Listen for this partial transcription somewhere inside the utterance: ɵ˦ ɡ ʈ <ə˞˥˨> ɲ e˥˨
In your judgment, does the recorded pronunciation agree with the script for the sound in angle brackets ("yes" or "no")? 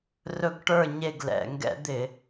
yes